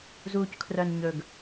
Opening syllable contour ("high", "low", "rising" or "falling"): low